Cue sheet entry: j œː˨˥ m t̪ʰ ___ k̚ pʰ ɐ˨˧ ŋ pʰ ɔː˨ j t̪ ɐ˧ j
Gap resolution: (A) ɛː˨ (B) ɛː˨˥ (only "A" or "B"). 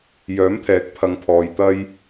B